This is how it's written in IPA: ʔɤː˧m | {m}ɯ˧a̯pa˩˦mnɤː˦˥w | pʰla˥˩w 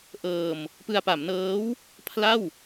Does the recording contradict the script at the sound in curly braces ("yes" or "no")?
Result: yes